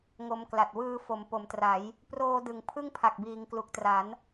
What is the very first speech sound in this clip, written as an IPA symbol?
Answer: ŋ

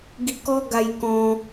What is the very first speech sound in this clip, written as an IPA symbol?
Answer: ɡ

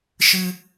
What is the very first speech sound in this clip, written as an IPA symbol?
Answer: ʃ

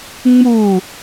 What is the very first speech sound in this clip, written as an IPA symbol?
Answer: ŋ͡m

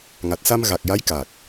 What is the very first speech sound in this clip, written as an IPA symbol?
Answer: ŋ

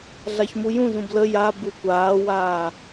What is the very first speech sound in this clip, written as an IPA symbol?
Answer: ɮ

